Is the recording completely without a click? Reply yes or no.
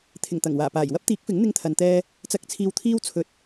yes